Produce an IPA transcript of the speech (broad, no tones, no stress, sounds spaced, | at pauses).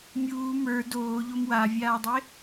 mʲ uː m ə˞ d oː ʎ o m w a vʲ aː dˤ e